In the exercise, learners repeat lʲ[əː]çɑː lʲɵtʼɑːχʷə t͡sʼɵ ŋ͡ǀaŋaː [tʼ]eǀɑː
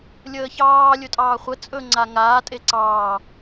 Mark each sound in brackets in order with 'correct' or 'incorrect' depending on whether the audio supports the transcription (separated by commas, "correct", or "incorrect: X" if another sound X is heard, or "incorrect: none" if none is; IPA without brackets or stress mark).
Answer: correct, correct